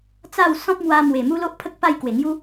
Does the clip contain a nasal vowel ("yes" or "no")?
yes